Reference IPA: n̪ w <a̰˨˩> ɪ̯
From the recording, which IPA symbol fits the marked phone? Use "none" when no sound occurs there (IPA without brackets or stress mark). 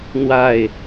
a˥˨